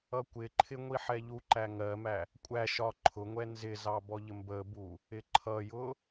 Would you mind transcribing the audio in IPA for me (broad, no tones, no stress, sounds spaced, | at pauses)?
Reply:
ʌ kʷ ɪ ǃʰ ɪ ŋʷ i ħ ɛ ʎ u ǃ æ ŋ ɜ m æ | kʷʼ æ ʃ ɒ ǃʰ ʊ ŋʷ ɛ n z ɪ z ɑ b ɔ ʎ ə m b ə b u | ɪ ǃʰ ʌ j ʊ